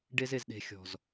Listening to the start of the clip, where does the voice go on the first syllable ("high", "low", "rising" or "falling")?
high